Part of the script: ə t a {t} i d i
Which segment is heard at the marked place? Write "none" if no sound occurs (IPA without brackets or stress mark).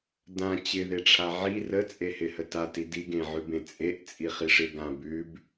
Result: t